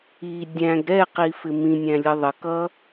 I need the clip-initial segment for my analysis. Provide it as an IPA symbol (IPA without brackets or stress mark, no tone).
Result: i